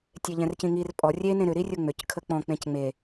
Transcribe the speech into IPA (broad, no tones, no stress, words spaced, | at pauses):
tʲeʎɛ̃rcĩŋir pʼɔ rʲe nẽɾʏ ɾirʲʊŋ͡mʏc kʰək͡pɔ̃ k͡pẽcŋ͡me